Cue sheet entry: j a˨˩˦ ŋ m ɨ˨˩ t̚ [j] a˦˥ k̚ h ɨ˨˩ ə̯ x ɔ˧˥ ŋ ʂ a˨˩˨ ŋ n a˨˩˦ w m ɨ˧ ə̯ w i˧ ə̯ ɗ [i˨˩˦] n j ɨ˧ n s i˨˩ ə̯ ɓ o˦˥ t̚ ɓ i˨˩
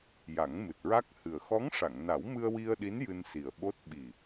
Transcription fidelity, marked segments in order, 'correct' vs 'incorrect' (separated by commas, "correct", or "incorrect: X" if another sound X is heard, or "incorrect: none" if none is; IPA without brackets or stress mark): incorrect: ɹ, incorrect: i˧˥